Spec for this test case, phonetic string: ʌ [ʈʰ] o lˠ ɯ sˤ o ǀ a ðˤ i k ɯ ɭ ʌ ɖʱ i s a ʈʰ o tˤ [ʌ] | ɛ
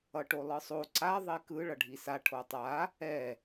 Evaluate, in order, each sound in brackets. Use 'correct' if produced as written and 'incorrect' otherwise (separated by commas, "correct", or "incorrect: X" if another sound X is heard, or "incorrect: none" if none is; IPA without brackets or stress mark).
incorrect: ʈ, incorrect: a